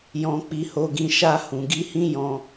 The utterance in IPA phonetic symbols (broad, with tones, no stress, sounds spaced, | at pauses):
j ɔ̃˧ k͡p i˧ h o˧ ɡ ĩ˧ ʃ a˧ h ũ˨ ɡ i˧ h ĩ˦ j ɔ̃˧